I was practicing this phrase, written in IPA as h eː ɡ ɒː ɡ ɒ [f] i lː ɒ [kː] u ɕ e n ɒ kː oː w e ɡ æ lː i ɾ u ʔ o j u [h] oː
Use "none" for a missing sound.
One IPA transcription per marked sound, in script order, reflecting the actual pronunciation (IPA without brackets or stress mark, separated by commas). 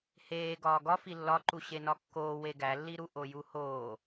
f, ǃ, h